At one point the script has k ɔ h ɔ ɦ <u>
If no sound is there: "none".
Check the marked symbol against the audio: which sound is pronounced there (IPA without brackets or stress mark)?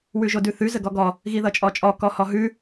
ʉ